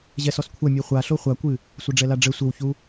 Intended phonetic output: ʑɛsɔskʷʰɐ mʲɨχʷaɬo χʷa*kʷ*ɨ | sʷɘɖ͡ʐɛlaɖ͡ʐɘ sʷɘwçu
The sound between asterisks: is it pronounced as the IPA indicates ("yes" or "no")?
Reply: yes